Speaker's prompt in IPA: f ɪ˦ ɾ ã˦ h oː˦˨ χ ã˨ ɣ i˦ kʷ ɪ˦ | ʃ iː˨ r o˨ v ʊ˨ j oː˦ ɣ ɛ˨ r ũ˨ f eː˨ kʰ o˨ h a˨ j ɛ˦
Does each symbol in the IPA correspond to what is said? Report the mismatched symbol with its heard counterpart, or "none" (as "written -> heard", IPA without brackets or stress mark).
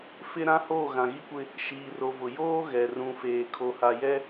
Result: χ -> ɣ